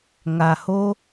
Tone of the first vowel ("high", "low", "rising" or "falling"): low